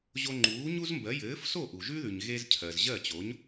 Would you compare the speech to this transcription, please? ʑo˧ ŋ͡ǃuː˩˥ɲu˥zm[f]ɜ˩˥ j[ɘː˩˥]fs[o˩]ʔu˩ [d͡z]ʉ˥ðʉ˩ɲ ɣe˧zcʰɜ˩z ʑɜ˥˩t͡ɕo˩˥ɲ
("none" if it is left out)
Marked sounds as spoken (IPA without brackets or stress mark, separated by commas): b, ɘː˩˥, o˥˩, ʒ